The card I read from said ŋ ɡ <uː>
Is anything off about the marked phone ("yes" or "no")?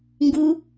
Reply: yes